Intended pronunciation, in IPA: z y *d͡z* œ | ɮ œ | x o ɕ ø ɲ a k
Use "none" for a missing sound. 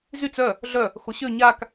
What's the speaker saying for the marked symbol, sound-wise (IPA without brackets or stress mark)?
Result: t͡s